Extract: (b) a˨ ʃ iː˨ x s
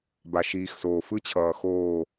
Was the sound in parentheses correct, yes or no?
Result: yes